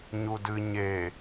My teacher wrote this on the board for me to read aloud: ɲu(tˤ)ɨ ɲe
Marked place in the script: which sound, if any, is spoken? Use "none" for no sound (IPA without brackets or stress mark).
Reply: d